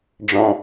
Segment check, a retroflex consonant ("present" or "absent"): present